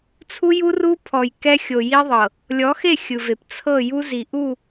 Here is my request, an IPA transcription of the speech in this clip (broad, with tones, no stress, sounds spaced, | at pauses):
t͡sʰ u˦ j u˦ r u˦ pʰ ɔ˨ j k ɛ˦ xʲ o˨ j i˦ ðˤ ɤ˨ | lʲ ɔ˨˦ x e˦˨ xʲ ɯ˨ v e˨ p t͡sʰ ɤ˦˨ j u˦ z i˨ ʔ u˦˨